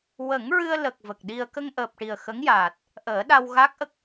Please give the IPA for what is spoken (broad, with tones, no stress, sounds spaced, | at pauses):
w ə˨˩˦ ŋ ɹ ɨ˧ ə̯ l ə˨˩ k̚ v ə˨˩ k̚ ɗ i˧ ə̯ k ə˧ ŋ ʔ əː˨˩ p̚ ʈ i˨˩ ə̯ x ə˧˥ ŋ j aː˨˩ t̚ | ʔ əː˨˩˦ ɗ a˧ w ɣ a˦˥ k̚ ʔ ə˦˥ k̚